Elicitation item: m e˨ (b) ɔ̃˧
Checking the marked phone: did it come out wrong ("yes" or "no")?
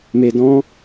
yes